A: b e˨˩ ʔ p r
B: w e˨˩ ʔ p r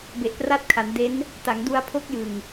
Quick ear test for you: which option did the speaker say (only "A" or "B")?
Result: A